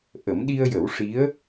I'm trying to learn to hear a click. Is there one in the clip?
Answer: no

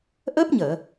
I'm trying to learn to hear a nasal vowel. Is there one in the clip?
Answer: no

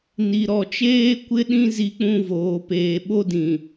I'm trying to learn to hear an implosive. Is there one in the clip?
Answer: yes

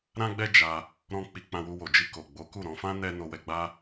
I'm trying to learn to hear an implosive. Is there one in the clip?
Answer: no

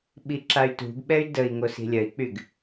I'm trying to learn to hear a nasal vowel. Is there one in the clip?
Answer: no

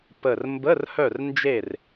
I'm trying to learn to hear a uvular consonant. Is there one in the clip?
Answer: no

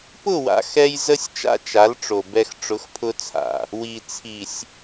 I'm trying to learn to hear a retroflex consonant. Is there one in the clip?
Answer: yes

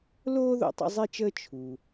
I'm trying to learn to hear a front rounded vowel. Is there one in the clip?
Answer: no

